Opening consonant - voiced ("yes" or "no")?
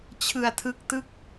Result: no